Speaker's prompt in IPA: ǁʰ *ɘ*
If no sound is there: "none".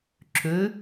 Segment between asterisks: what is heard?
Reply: ø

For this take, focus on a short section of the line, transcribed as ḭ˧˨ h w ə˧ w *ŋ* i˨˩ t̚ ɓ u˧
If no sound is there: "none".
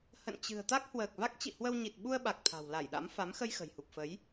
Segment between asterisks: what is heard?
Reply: ɲ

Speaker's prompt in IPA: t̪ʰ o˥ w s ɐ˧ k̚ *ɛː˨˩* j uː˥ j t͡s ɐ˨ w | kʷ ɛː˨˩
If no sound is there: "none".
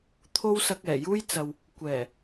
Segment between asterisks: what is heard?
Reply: ɛː˨˩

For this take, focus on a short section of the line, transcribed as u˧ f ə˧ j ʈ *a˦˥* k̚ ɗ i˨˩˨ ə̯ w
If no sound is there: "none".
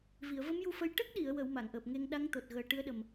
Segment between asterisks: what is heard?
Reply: ə˦˥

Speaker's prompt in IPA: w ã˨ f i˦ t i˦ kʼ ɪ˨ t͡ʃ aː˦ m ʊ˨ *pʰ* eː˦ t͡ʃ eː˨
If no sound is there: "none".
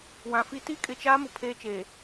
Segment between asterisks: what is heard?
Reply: pʰ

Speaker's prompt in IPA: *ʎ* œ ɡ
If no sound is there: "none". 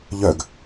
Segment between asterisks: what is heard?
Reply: ʎ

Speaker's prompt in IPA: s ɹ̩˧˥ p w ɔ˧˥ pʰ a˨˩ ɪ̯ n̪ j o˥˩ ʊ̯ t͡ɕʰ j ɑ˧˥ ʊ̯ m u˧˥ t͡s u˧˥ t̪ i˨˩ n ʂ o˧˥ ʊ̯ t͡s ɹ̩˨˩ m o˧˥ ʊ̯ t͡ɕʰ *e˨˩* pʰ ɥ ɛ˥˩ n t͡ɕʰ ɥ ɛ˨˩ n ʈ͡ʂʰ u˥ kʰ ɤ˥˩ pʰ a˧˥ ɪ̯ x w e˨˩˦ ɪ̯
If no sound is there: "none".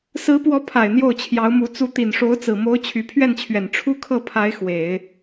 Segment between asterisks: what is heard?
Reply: y˨˩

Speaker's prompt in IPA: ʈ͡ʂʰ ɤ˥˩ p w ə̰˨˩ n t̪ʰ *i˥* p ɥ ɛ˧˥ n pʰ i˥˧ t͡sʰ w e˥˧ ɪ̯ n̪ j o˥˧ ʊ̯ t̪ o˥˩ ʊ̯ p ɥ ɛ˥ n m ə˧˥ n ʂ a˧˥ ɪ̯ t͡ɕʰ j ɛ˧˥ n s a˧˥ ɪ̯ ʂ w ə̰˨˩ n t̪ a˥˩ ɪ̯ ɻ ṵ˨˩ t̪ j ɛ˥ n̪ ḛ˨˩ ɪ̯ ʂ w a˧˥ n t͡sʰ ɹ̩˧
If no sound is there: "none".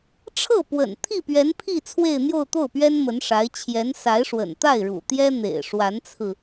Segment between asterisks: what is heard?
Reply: i˥˩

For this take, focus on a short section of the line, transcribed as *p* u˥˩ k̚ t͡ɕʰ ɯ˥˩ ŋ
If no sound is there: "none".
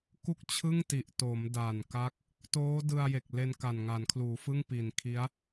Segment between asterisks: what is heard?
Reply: k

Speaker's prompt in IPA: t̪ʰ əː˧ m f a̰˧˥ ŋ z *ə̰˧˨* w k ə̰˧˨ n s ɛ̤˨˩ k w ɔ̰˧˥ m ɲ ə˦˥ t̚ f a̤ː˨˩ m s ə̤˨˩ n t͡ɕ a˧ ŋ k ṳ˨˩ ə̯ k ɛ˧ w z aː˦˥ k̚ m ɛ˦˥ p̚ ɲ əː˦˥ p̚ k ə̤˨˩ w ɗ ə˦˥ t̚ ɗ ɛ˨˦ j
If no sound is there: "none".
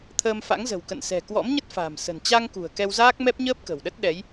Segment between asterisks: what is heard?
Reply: ə̤˨˩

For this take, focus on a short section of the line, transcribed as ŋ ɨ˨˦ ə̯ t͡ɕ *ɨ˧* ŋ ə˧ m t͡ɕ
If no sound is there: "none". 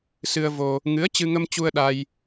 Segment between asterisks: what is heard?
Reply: ɨ˧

